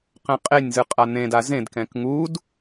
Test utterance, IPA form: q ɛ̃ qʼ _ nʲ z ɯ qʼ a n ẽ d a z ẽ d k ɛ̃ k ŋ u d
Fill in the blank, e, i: e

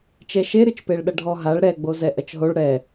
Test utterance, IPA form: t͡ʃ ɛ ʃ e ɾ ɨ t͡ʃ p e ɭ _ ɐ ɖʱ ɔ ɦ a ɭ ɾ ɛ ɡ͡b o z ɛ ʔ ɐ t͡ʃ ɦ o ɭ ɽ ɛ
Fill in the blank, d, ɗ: ɗ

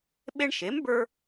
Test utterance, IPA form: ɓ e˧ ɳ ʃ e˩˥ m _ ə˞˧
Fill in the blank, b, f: b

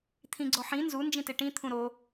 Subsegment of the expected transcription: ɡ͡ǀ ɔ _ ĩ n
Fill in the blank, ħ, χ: ħ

